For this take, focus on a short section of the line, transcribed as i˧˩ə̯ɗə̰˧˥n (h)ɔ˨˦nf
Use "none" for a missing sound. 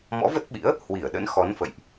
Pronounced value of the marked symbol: x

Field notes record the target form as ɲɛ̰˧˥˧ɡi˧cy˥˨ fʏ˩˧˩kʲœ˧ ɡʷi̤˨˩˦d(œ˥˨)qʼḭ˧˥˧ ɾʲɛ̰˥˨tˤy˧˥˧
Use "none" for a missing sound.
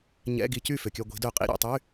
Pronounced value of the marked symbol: œ˨˩˦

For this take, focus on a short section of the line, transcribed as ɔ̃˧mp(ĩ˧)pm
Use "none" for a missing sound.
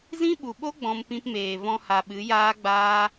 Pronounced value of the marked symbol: ĩ˧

